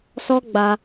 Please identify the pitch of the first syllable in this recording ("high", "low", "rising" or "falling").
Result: high